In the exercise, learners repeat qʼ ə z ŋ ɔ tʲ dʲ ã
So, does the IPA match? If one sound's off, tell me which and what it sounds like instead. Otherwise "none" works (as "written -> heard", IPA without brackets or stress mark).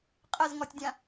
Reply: none